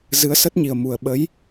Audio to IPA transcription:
z ɨ˨˦ ə̯ s ə˦˥ t̚ ɲ i˨˩ ə̯ m u˨˩ ə̯ ɓ ə˨˦ j

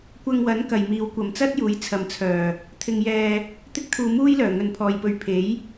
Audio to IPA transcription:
kʷ ɐ˧ ŋ w ɐ˨˥ n k ɐ˨ j m iː˨ w kʷ ɐ˨˧ m t͡s ɐ˥ t̚ j uː˨˥ j t͡sʰ ɐ˨ m t͡sʰ œː˨˩ | t̪ʰ ɪ˧ ŋ j ɛː˧ | t̪ ɪ˥ k̚ t̪ʰ uː˧ m uː˥ j l œː˨˩ ŋ ɵ˨˧ n pʰ ɔː˨ j p ɵ˨ ɥ pʰ e˨˥ j

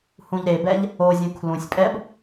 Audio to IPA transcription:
h ũ ʎ ɾ e b ɛ ʎ | o zʲ ũ kʰ l ũ sʲ pʼ ɛ b

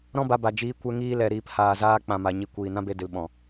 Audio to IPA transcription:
ɾ ɔ̃˦ b a˧ b a˨ d͡ʒ iː˧ kʷ ɛ˦ ŋ iː˦ l ɛ˨ ɾ iː˨ p h aː˨ z aː˧ k͡p ã˨ m a˨ ɲ i˨ kʷ iː˨ n ã˦ b e˧ d ɨ˨ l ɓ ɔ̃˨

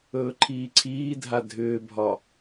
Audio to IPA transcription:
ɵː ǃʰ iː ǀʰ iː dʱ a dʱ ʏː bʱ ɒ

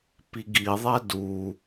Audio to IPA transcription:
p i ɡ i ðˤ ɛ d u

